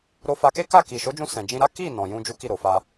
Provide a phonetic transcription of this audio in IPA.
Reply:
ɾo˧fa˧ke˦ka˦˨ ki˨ʃo˨˦d͡ʒũ˧ sɛ̃˨d͡ʒĩ˧ɾa˦ ki˦˨ nɔ̃˨jũ˧ d͡ʒu˦ki˦˨ɾo˨fa˧

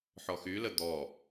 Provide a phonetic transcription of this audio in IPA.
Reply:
ħɔxylə d̪ɔ

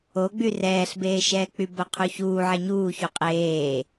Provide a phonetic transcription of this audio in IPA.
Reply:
oɡ͡by rɛːɬbeːʃɛːk͡py boqʰuçuː ʕeɲuːçu qʼeː

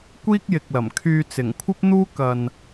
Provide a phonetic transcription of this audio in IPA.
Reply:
kʷiː˥k̚jɪ˨k̚lɐ˨˩mkʰyː˧ t͡sɪ˨˩ŋkʷʰɐ˥p̚n̪uː˥ kɐ˧n

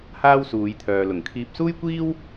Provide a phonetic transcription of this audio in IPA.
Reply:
haː˥wsuː˨˧jt̪ʰœː˨lʊ˨˩ŋ kʰiː˨p̚suː˥jkʷiː˥w

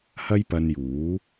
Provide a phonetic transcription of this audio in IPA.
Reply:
hɐ˥jpɐ˧njuː˨˥

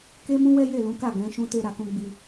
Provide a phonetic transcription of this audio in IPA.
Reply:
ke˦mũ˦ wɛ˦je˦˨lũ˨˦ka˦˨ ɡɛ̃˨˦ʃũ˦ te˧ɾa˨kũ˧ ɡ͡bi˧

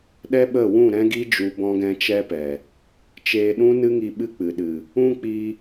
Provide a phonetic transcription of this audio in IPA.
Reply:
ɗɛ˦ɓə˦˨ wũ˦˨ ɾɛ̃˦ɡi˦d͡ʒu˧ bɔ̃˧ɡɛ̃˧t͡ʃɛ˧pɛ˨ | t͡ʃeː˧ɗũ˦nɨ˦ŋi˧ ɓɨ˦k͡pɨ˨ɗɨ˨ | ũ˦k͡pi˧

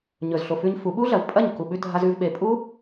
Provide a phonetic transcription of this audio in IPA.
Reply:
ɲɵ˨zɬo˨fʉ˧ɲ fu˨˦ ɓu˦ɮɐ˨vpʼɐ˦˨ɲku˨ ɓʉ˧dʱa˧zʉ˧vɓe˨ pʼu˦

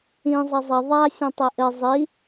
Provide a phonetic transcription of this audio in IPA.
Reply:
ĩ zˤɐzˤɐ ðˤa sʲũtˤeʔɘ zˤi

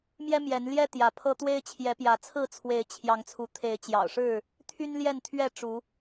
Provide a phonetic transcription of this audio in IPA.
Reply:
mjɛ˦mjɛ˨˦nljɛ˦ t̪jä˨˦pʰɤ˦ t̪we˦ɪ̯t͡ɕʰjɛ˨˦pjä˨˦ t͡sʰɹ̩˥˨t͡sʰwe˨˦ɪ̯t͡ɕʰjɑ˨˦ŋ t͡sʰu˨˦t̪ʰe˨˦ɪ̯t͡ɕjɑ̰˨˩ʊ̯ʂɻ̩˥˨ | t̪ʰy˦nljɛ˥˨nt̪ʰɥɛ˥˨ ʈ͡ʂu˨˦

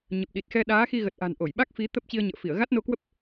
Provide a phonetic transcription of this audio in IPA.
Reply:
ɲə˨˩p̚ɗi˨˩t̚xɛ˧ ɗaː˨˦xi˧ɣə˨˩t̚ʔa̤˨˩n ʔo˧˩jɓa˦˥k̚ fi˨˦ t̪ə˦˥p̚ t͡ɕi˧ə̯ɲə̰ː˧˨fi˧˩ə̯ ɣa˦˥t̚no˧kwə˦˥p̚

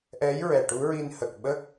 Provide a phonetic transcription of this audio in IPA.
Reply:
ʔɛ˧˥j ɹɛ˨˩ʈu˧˥ɹi˧nhə˨˩k̚ ɓəː˦˥k̚

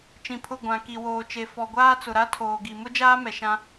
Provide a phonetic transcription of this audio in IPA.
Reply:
t͡ʃĩ˨pʰʊ˦˨ ɡʷã˨ ki˨woː˨t͡ʃe˨fɔ˨ ɡʷaː˦t͡sʊ˨ɾa˦ tʰoː˨ɡi˨ mʊ˦d͡ʒaː˦ mɛ˨ʃã˦

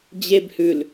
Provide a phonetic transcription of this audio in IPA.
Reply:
d͡ʑeb hʉl

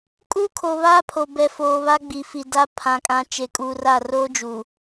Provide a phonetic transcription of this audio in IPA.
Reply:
kʼu˦kʰo˨ βaː˦pʰo˨bɛ˨foː˨ βa˦ɡ͡bi˨fi˨ da˦ pʰã˨kʼã˨ t͡ʃe˨˦kʼuː˨ra˦˨ roː˦d͡ʒu˨

